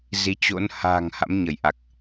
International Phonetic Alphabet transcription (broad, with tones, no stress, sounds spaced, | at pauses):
z i˨˦ t͡ɕ o̰˧˥ n h a̤ː˨˩ ŋ h a̰˧˥ m ɲ ə˧˩ j ʔ a˨˩ k̚